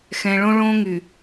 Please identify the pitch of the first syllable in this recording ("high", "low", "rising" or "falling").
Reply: low